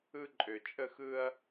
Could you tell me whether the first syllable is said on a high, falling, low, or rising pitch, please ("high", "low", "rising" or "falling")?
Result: high